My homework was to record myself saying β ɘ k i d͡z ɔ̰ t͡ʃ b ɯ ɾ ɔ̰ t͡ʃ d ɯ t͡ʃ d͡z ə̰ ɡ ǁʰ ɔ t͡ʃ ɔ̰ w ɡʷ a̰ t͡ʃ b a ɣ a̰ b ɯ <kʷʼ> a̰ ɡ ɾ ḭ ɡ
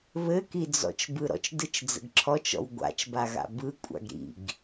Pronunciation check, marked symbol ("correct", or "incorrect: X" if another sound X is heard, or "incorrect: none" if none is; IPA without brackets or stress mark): correct